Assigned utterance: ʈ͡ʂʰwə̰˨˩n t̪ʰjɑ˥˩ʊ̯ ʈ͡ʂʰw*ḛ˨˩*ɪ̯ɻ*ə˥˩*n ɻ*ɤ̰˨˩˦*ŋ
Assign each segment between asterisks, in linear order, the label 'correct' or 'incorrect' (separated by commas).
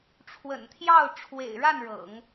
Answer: correct, incorrect, correct